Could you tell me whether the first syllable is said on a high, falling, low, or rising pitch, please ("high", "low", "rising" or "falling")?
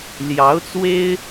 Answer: rising